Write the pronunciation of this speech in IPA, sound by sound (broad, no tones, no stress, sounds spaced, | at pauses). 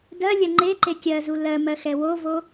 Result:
d ɜ lʲ ɜ ŋ͡ǃ e ǃ e kʲ ɜ z u l ɜ m ɜ x ɛ w o v o